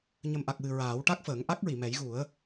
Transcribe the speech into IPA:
ɲ ə˨˩ m ʔ a˨˩ k̚ w ɨ˨˩ ɹ aː˨˩˦ w ʈ a˦˥ k̚ f əː˨˩˦ ŋ ʔ a˦˥ k̚ ɹ i˨˩˨ m ɛ˨˩˦ j ɣ u˨˩˦ ə̯

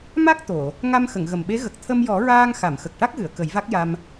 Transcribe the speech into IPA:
m a˦˥ k̚ t̪ o˨˩˨ | ŋ a˧ m x ə˨˩˨ ŋ ɣ ə˨˩ m ɓ e˧˥ ɣ ə˨˩ k̚ t̪ʰ ə˧ m j ɔ˨˩˦ ɹ aː˧ ŋ x a˨˩˨ m x ə˨˩ k̚ ʈ a˦˥ k̚ ɣ ɨ˨˩˨ ə̯ k ə˨˩˦ j v a˦˥ k̚ j a˧ m

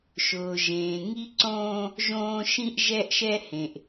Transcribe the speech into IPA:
ʃ ʊː˨ ʒ ẽː˨ ŋ i˦ ǀ õː˦ | ʒ õː˦ ʃ ĩ˦ ʔ ʒ ɛ˦ ʔ ʃ ɛ˦ h ẽ˨ ʔ

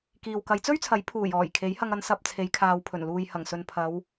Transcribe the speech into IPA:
k iː˨ w k ɐ˨˧ j t͡s ɵ˥ ɥ t͡sʰ ɐ˨˥ j pʰ uː˨˩ j ɔː˨˩ j kʰ e˨˥ j h ɐ˧ ŋ ɐ˧ n s ɐ˧ p̚ t͡sʰ e˨˧ j kʰ aː˨ w pʰ ɵ˨˩ n l uː˨ j h ɐ˨˩ ŋ s ɵ˨ n pʰ ɐ˨˧ w

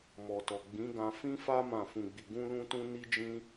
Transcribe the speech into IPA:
m ɔ˨ t ɔ˨ ɡ͡b ĩ˨˦ ɡ ã˧ f ĩ˦ f a˦ m ã˦˨ f ũ˧ ɡ͡b i˧ ɡ ũ˦ l ũ˦ t ũ˦ n i˦ d͡ʒ ĩ˦

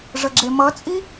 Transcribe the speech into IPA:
ʐ ə ɡ͡ǁ e m ʌ t͡sʼ i

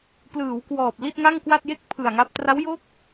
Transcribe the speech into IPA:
p l ɯː˩˦ w k w ɔː˨˩ p̚ l i˥˩ t̚ ŋ a˥˩ ŋ k w a˥˩ t̚ j e˥˩ k̚ pʰ ɯ˨˩ a̯ ŋ a˦˥ p̚ t r a˦˥ w j o˥˩ k̚

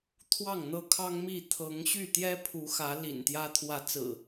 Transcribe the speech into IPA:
t̪ʰ w ɑ˥˨ ŋ n̪ ɤ˦ kʰ ɑ˦ ŋ m i˥˨ t̪ʰ ɤ˨˦ ŋ ɕ y˥˨ t̪ j ɛ˦ pʰ u˨˦ x ä˨˦ l ḭ˨˩ n t̪ j ä˦ t̪ʰ w ä˨˦ t͡s ɹ̩˨˩

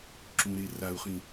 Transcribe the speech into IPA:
ǁ ũ ɾ e r a u̯ χ ĩ

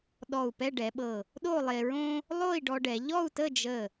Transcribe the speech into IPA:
ɗ ɔ˧˩ u̯ p ɛ˥˧ ɖ ɛ˩˧ ɓ ɤ˧˩ | ɗ o˥˧ lˠ e˧ ɹ õ˥ | lˠ o˥˧ i̯ ɖ ɔ˧ ɖ ɛ˩˧ ʎ ɔ˥˧ u̯ t ə˥˧ d͡ʒ ə˧˩

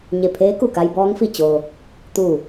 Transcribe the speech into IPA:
ɲ e˧˩ pʰ eː˧˥ k u˧˩ k a˧ j b ɔː˧˥ ŋ f i˧˩ t͡ɕ o˩ | t̪ u˧˩

